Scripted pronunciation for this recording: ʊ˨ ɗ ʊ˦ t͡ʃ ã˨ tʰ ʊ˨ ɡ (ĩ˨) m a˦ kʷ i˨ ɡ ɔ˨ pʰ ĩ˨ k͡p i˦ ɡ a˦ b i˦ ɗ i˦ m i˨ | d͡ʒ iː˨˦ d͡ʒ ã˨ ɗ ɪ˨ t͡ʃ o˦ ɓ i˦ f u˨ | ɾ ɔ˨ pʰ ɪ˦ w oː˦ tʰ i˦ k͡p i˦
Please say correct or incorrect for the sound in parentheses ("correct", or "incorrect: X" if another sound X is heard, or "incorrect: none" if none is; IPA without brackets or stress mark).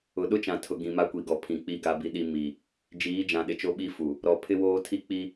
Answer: correct